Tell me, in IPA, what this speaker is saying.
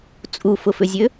t͡sʼ u f ʊ f ʏ zʲ ø

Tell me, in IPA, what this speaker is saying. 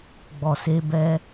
ɡ͡b ɔ˨ s e˧ b ɛ˦

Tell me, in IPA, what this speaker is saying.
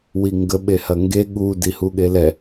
w i ŋ ɡ ə ɓ e h ɐ ŋ ɡ e ɠ u d i h u ɠ e l ɛ

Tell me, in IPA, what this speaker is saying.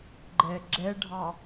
ɡ͡ǃ ɛ ɡ͡ǁ ɛ ɖʱ ɑ

